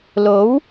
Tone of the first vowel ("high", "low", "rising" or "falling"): rising